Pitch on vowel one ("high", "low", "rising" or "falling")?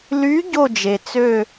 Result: rising